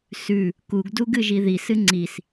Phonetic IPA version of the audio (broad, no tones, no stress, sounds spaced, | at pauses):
s ʉ | k u ɡ d u ɡ ɨ ʒ i ð i s ɨ ŋ͡ǀ i s